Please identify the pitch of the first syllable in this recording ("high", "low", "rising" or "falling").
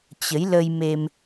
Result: rising